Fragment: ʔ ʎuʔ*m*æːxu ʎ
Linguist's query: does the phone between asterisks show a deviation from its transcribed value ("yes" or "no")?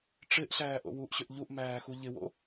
no